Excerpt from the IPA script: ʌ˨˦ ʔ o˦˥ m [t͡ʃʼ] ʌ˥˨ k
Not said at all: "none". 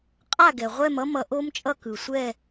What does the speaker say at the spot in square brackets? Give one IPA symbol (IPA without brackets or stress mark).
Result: t͡ʃʼ